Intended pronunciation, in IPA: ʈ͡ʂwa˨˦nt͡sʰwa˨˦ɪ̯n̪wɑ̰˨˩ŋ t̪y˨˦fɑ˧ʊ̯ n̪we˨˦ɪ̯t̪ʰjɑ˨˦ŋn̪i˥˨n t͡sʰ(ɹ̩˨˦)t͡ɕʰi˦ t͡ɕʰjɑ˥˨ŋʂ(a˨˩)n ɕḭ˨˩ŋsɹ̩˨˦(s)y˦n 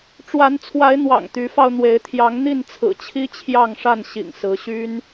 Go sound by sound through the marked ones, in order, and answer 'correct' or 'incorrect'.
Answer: incorrect: ɹ̩˨˩, incorrect: a˥˨, incorrect: ɕ

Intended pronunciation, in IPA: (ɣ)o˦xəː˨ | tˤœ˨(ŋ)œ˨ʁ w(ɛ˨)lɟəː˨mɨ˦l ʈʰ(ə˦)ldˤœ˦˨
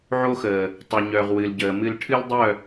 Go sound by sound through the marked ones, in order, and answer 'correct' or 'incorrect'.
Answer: incorrect: ʕ, incorrect: ɲ, incorrect: ɨ˨, incorrect: ɨ˦

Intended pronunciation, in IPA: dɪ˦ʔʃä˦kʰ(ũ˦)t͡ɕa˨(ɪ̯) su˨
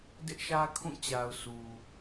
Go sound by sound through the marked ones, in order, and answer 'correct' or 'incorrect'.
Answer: incorrect: ũ˦˨, incorrect: ʊ̯

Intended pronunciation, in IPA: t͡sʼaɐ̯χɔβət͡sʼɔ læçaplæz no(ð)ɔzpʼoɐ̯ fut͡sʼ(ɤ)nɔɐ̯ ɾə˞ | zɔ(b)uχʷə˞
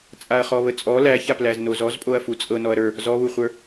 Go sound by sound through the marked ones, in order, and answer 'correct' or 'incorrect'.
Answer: incorrect: z, correct, incorrect: β

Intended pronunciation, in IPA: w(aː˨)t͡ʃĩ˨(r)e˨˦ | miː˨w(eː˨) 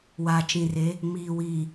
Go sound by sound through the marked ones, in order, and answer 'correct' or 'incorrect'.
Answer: correct, correct, incorrect: iː˨

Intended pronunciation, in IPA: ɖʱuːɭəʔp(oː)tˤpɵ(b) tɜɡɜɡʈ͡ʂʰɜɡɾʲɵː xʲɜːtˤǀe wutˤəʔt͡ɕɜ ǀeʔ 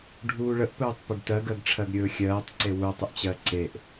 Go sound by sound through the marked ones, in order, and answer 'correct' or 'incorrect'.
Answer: incorrect: ɵː, incorrect: ɖ

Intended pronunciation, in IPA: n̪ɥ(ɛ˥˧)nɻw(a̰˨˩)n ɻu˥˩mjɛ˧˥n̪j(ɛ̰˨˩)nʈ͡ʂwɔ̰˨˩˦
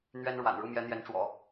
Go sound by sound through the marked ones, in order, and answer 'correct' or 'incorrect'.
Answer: incorrect: ɛ˥, correct, incorrect: ɛ˧˥

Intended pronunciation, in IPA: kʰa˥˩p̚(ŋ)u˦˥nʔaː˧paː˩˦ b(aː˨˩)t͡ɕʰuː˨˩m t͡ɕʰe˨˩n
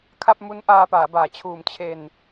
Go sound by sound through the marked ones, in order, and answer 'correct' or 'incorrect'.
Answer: incorrect: m, correct

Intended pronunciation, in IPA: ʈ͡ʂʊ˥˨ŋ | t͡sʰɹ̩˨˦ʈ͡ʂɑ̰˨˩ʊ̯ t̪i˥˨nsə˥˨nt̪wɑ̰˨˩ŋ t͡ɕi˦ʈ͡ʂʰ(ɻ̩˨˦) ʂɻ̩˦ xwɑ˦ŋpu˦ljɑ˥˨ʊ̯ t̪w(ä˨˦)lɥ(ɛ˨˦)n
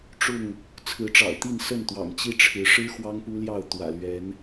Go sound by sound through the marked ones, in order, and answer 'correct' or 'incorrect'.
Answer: correct, incorrect: ä̰˨˩, correct

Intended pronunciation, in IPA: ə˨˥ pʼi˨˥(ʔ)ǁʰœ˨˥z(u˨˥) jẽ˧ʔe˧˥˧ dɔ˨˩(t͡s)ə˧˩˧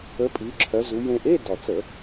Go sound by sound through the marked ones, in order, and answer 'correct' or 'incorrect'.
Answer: incorrect: none, correct, correct

